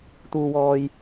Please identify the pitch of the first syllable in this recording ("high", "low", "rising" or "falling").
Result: low